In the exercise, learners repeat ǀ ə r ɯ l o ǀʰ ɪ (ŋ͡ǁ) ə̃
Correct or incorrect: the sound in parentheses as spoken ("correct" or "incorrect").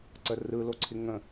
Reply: incorrect